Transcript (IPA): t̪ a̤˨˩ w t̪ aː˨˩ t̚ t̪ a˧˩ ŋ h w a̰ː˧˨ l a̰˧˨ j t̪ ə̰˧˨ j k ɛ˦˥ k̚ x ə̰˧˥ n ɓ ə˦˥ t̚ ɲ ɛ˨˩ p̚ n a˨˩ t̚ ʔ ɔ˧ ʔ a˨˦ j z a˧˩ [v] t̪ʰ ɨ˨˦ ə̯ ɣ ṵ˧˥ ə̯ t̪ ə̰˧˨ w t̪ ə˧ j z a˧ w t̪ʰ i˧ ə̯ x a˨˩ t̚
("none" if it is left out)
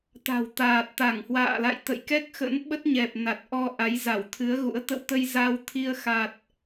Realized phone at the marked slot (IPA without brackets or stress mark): w